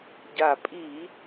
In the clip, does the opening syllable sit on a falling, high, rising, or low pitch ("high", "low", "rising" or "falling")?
low